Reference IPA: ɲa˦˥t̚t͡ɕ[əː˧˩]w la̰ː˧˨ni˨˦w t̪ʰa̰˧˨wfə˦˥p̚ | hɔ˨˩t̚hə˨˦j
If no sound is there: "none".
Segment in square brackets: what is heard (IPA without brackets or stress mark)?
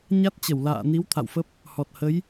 ə˧˩